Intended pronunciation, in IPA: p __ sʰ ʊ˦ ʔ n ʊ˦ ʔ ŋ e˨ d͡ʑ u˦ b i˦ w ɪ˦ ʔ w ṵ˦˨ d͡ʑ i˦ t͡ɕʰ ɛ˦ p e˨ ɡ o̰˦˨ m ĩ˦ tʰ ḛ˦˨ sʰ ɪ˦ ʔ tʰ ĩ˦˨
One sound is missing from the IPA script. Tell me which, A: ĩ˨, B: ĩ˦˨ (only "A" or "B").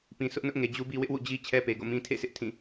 A